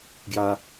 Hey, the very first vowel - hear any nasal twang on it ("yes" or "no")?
no